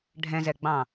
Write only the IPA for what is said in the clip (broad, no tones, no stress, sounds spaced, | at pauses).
ɖʱ ɛ̃ z ɛ ɡ͡b ɑ̃